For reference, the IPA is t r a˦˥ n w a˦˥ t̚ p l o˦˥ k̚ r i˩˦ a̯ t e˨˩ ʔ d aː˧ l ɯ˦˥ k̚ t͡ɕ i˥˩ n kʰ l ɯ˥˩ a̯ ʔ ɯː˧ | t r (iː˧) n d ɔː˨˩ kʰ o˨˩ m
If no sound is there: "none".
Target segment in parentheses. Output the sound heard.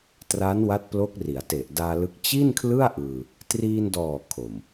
iː˧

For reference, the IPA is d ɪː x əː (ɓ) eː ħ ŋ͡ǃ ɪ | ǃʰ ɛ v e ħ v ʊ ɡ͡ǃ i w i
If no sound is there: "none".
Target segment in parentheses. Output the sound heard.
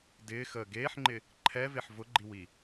ɡ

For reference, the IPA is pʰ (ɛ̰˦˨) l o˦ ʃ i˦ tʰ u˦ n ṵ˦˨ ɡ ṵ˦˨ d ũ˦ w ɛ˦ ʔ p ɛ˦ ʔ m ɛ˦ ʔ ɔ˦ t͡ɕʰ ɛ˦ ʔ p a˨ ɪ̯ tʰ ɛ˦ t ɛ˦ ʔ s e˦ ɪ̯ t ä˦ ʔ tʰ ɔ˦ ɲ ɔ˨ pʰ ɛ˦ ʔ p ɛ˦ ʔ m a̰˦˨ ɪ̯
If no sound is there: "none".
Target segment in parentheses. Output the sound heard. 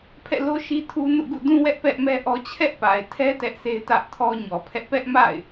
ɛ̰˦˨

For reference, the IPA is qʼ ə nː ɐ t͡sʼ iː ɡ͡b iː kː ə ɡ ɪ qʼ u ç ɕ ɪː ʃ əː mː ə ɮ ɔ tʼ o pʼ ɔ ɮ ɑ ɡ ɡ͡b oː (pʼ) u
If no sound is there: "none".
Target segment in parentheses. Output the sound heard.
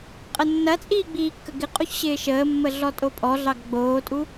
tʼ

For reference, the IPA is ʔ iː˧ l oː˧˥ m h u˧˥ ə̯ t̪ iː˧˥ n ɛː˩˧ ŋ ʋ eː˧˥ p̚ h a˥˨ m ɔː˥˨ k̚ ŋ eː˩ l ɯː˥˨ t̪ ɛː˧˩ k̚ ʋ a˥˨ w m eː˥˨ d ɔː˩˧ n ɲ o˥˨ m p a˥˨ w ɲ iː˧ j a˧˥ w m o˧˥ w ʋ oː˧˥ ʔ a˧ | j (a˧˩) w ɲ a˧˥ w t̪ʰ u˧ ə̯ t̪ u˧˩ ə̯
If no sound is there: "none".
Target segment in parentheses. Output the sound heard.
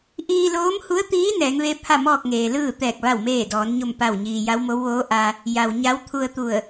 a˩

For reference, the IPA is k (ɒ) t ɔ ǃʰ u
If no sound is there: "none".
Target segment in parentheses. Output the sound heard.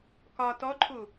ɒ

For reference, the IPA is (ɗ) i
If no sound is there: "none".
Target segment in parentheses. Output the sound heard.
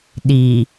ɗ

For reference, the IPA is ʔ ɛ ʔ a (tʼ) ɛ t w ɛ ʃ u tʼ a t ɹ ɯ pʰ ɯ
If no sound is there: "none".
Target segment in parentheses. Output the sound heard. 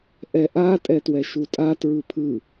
tʼ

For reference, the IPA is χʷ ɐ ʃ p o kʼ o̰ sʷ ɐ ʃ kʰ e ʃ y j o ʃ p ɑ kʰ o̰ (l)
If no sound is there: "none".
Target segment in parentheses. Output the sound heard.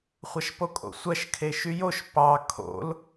l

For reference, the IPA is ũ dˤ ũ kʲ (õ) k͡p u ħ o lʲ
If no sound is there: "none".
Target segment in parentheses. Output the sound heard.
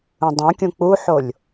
ũ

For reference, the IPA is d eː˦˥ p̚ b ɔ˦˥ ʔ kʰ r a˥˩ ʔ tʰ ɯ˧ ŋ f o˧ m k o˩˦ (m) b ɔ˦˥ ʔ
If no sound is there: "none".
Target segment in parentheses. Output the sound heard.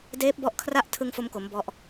m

